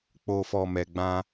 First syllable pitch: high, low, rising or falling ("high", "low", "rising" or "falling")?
low